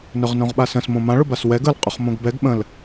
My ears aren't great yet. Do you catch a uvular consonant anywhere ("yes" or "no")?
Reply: yes